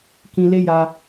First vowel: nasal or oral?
nasal